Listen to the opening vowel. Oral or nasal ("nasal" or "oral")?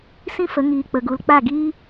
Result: nasal